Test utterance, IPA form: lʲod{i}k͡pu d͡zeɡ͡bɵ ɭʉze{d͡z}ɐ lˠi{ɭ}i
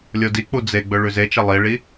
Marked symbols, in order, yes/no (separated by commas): yes, no, yes